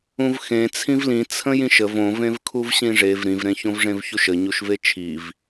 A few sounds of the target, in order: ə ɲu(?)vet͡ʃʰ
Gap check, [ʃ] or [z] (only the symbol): ʃ